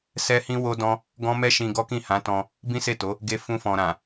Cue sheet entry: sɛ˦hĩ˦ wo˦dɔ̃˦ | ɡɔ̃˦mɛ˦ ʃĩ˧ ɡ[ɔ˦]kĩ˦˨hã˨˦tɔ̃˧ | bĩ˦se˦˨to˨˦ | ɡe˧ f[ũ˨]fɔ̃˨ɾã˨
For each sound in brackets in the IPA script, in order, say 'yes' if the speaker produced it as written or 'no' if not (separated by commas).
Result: yes, no